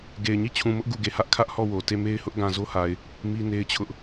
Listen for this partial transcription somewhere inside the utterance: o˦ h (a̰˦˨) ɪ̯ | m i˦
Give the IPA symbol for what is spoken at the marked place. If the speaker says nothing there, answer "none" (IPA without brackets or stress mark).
a˨